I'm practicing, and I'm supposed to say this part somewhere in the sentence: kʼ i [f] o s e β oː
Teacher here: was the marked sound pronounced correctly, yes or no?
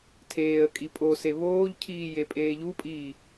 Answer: no